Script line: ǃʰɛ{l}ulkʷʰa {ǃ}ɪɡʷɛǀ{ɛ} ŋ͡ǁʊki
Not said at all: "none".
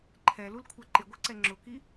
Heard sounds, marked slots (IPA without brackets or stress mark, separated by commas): l, ǃ, ɛ